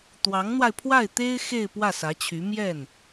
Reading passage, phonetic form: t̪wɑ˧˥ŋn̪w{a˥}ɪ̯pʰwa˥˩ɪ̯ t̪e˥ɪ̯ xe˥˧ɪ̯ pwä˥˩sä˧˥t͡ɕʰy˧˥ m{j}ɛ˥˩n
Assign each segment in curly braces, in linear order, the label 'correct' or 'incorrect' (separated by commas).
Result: incorrect, correct